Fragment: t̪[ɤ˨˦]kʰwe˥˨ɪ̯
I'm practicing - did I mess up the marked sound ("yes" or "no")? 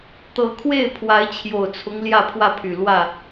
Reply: no